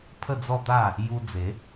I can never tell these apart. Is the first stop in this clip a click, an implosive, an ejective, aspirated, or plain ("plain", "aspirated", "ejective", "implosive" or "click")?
aspirated